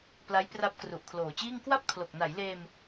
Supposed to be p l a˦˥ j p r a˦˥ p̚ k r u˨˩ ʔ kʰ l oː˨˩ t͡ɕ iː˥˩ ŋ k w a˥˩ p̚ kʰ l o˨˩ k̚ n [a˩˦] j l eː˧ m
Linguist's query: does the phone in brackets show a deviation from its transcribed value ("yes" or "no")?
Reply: no